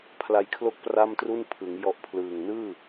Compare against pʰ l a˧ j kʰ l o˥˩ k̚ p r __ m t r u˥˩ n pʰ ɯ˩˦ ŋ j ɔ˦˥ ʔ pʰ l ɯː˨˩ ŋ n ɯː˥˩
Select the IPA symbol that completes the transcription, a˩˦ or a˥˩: a˥˩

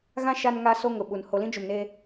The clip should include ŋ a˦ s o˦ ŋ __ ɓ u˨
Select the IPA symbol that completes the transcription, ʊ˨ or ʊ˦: ʊ˨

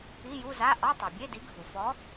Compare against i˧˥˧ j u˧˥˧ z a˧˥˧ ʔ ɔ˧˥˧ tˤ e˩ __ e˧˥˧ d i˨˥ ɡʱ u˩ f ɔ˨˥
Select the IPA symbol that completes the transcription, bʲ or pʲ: bʲ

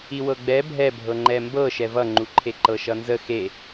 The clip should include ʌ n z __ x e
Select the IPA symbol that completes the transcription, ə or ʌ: ə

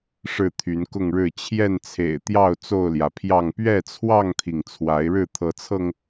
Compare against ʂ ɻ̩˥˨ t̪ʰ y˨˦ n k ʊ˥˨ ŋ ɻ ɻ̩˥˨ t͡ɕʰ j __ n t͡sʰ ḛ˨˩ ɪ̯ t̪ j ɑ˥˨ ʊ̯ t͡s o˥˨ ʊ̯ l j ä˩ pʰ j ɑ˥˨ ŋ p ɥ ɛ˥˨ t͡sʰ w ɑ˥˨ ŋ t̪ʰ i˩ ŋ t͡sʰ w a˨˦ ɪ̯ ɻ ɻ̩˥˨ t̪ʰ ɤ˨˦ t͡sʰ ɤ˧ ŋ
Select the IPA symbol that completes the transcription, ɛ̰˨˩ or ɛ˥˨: ɛ˥˨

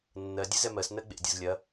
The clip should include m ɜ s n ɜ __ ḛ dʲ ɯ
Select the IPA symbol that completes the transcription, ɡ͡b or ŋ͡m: ɡ͡b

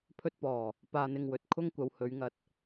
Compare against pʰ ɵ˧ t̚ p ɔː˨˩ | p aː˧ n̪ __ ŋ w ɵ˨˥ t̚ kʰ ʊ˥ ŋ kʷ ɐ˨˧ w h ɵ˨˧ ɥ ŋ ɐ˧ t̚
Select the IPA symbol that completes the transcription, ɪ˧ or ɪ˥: ɪ˧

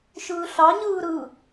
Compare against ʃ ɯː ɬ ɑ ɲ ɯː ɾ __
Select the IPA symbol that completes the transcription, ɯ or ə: ɯ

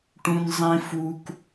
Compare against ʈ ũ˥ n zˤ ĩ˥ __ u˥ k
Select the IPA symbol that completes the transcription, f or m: f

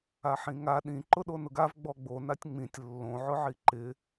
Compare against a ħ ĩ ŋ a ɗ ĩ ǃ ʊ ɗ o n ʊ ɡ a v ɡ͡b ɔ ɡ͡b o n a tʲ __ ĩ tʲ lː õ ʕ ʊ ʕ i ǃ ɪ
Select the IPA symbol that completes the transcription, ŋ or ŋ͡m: ŋ͡m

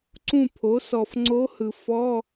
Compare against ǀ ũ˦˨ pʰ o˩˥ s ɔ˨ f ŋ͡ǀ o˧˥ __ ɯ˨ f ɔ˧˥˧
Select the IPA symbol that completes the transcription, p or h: h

